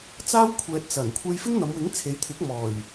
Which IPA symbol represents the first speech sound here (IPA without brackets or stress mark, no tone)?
t͡s